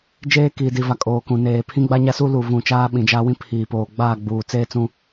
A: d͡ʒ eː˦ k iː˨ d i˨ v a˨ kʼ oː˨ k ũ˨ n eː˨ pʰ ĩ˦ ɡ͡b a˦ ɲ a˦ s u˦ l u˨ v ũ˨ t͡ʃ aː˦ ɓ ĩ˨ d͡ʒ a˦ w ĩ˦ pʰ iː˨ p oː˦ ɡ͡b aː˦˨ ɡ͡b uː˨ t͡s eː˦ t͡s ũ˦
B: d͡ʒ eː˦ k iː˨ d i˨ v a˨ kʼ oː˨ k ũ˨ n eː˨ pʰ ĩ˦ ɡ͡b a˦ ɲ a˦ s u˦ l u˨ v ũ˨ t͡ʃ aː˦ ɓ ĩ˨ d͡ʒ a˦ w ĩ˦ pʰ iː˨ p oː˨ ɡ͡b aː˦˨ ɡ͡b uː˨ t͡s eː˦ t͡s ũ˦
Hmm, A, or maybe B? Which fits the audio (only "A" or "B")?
B